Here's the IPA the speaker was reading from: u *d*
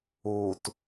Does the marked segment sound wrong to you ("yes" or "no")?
yes